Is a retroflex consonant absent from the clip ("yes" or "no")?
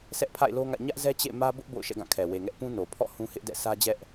yes